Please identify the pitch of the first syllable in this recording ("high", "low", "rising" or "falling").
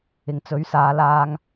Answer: low